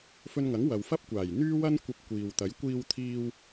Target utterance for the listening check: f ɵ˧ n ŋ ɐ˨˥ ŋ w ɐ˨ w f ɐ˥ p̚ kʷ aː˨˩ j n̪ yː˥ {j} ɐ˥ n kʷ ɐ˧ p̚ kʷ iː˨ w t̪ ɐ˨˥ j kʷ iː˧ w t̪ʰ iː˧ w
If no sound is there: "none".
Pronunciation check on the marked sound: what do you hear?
w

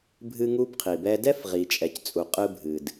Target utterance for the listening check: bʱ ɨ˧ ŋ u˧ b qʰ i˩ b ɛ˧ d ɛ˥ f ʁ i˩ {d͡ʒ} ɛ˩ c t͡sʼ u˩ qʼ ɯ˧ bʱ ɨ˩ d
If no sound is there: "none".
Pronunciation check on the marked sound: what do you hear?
t͡ʃʼ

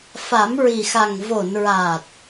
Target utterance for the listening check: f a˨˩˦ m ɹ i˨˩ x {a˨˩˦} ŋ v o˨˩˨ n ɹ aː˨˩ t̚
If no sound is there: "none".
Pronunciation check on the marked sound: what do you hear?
a˨˩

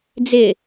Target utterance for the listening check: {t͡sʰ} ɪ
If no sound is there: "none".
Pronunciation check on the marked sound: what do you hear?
d͡z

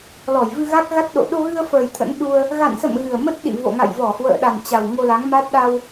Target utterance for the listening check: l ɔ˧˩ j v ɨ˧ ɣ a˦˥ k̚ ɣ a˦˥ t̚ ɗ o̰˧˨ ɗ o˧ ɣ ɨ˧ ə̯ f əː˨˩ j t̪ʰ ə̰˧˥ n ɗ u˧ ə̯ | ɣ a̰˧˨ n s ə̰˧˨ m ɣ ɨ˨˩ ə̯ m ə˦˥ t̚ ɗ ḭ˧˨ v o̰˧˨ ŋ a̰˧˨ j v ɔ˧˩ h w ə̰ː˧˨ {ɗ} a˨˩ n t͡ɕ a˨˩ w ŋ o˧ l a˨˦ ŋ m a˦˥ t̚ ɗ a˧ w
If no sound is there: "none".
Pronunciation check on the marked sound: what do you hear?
ɗ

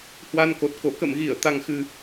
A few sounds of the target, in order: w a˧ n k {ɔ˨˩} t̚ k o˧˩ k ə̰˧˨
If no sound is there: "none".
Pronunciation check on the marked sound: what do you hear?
o˨˩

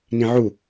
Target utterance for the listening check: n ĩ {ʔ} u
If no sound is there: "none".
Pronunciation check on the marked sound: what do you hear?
ʕ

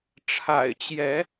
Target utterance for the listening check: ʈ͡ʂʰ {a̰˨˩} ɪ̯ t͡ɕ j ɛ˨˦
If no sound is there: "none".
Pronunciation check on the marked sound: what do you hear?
a̰˨˩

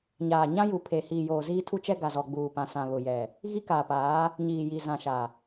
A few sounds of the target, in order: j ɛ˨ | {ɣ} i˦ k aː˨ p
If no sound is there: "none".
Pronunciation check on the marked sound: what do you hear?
ɣ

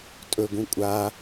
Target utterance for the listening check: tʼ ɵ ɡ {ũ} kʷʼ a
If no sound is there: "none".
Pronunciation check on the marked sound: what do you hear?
ũ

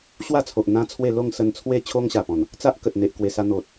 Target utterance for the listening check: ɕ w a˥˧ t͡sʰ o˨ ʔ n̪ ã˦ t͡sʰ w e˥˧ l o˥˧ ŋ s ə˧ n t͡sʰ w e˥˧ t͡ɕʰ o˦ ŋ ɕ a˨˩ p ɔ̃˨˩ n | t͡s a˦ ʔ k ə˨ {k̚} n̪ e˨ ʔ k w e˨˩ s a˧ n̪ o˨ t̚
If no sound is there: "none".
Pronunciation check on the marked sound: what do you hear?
t̚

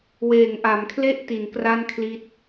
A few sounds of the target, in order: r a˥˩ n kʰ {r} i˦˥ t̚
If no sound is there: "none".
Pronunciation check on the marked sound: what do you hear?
l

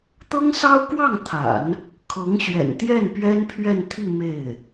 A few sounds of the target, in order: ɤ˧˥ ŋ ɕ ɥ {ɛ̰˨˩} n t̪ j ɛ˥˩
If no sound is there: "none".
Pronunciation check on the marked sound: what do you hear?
ɛ̰˨˩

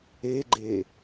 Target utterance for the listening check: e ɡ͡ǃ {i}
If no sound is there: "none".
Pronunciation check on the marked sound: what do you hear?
e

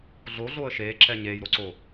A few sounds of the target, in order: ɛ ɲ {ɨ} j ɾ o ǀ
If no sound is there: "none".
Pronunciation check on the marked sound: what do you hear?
e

